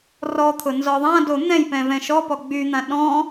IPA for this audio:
r ɔ t̪ʰ ʊ n z ɔ ðˤ ã d o n̪ ɛ̃ j p ɛ̃ v ɛ̃ ʃ ɔ p ɔ ɡ͡b y n̪ ã ɗ ɔ̃

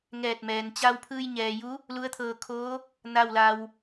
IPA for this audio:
ŋ ɛː˧˩ t̚ m ɛː˩ n t͡ɕ a˧ w pʰ ɯː˧ j ɲ ɛː˩ j u˧˥ | l u˧˥ ə̯ t̪ʰ ɤː˧ kʰ oː˧˥ | n a˥˨ w l a˧ w

